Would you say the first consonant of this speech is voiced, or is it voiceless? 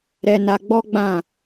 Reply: voiced